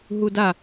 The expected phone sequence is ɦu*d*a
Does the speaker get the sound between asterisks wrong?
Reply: no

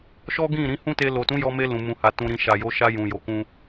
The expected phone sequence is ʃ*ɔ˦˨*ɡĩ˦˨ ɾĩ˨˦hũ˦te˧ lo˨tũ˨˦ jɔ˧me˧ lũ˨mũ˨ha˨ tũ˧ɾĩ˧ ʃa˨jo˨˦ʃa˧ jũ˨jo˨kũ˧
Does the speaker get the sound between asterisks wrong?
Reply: yes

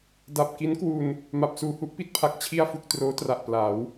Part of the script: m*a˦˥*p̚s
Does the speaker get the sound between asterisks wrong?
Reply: yes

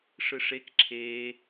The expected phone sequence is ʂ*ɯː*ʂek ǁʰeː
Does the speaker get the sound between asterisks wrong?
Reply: yes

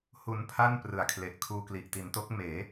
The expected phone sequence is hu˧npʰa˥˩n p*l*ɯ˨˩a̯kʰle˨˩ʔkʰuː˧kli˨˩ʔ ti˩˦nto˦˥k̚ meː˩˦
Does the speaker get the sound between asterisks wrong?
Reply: yes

